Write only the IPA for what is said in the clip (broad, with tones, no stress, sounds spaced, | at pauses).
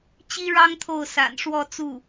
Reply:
t͡ɕ i˥ ɻ ɑ˥ ŋ t̪ʰ o˥˩ ʊ̯ s a̰˨˩ n ʂ w ɔ˥˧ t͡s u˥˩